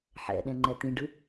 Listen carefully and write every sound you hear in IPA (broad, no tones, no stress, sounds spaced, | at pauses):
ħ ɛ̰ ɗ ɛ̃ ŋ͡ǃ ɛ t̪ ĩ ɖ ɯ